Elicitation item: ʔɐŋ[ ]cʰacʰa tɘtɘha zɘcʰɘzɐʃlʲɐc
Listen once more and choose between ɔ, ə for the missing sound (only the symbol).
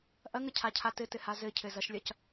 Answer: ə